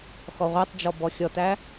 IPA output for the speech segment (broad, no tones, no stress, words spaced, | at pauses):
xɔʁʷɛtˤd͡ʒɔ bɔxʲɔtæ